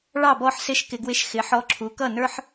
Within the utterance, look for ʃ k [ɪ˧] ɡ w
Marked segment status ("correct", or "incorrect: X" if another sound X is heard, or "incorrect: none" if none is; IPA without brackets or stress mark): correct